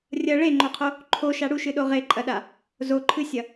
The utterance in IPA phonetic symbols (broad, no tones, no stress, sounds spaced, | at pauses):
rʲ ɐ ɭ e ŋ͡ǃ o qʰ o | ǃʰ o ʃ a ɽ u ʃ ɨ ɗ o ʁ e ǃʼ ɐ ɗ a | z o ǃʰ ɨ sʲ ɐ